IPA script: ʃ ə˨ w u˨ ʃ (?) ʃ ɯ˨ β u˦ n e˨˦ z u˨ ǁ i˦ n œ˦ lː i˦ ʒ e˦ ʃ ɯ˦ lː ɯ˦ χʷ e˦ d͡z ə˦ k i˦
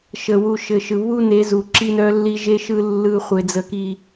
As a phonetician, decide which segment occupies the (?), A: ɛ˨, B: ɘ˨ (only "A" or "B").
B